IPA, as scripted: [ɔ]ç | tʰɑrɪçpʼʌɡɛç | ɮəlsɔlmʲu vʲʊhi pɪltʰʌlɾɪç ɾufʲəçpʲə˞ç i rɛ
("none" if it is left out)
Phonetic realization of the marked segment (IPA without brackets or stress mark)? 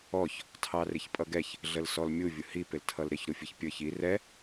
ɔ